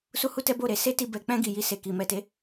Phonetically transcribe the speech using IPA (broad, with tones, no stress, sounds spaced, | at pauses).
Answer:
s u˦ h u˦ t ɛ˦ b o˦˨ ɾ e˧ s e˦ t i˧ b ɛ˨ k͡p ɛ̃˧ ɡ i˨ j i˧ s e˨ k i˨ m ɛ˨ t e˨˦